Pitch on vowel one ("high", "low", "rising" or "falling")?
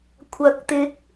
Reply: rising